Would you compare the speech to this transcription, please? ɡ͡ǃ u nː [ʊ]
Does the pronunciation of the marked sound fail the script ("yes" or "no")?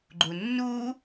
yes